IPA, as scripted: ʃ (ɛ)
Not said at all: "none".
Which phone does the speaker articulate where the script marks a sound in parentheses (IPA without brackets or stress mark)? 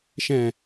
ɛ̃